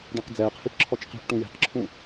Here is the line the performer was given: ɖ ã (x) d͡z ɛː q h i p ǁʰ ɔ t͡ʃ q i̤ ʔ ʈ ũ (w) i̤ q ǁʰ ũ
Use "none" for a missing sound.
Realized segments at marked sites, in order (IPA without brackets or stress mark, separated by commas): q, j